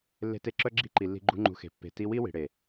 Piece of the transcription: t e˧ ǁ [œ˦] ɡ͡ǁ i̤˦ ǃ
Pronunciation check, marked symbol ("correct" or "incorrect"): correct